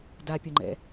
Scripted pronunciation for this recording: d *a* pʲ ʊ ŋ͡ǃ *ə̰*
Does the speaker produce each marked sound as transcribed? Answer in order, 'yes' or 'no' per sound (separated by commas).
yes, no